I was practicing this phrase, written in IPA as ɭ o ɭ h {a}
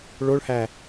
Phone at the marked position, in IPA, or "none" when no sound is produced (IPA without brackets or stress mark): æ